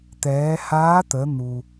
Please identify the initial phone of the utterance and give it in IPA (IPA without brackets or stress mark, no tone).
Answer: t̪